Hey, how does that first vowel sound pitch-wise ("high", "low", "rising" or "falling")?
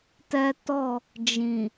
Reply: high